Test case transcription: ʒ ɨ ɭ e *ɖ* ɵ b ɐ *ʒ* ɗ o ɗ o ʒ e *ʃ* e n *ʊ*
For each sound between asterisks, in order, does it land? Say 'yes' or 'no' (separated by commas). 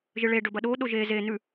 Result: yes, no, no, no